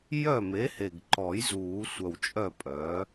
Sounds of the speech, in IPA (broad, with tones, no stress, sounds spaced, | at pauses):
j œ˥˩ m e˩˥ h e˨˩ ɡ ǃ ɔ˨˩˦ j z uː˨˩˦ sʷ œ˨˩ w t͡ʃʼ œ˥˩ pʼ œː˩˥